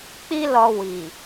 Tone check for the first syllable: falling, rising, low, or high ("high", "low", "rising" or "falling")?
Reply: high